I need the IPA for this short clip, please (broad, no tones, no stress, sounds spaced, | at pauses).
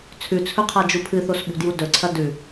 t͡sʰ ʉ t͡sʰ ɵ qʰ a d͡ʒ u pʰ ɨ θ o s ɓ ṳ d j u d ɵ ǀʰ ɐ d ʉ